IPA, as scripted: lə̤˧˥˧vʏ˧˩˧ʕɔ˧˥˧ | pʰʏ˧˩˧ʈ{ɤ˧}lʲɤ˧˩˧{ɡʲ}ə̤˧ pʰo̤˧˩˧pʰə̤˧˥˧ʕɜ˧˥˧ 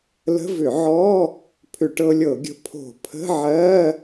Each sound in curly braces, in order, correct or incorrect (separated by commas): correct, correct